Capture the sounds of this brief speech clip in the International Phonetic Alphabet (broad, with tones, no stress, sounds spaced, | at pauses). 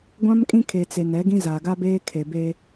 ɡʷ ã˦ m kʼ ĩ˦ kʰ e˨ t͡s e˨ n ɛ˨˦ ɡ ĩ˦ z aː˨ ɡ a˦ b eː˦ kʰ e˨ b e˦